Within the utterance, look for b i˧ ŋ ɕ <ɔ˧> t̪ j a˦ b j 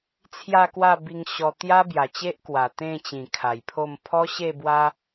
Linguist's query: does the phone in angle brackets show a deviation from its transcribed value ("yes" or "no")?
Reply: no